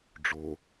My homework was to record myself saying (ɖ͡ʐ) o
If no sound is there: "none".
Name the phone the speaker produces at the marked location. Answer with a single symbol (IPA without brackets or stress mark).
ɖ͡ʐ